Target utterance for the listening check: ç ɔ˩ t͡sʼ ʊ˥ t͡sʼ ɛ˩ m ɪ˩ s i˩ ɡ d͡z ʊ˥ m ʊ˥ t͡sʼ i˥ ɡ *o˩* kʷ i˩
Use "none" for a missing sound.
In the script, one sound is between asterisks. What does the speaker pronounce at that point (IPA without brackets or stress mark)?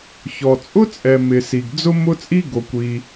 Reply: o˩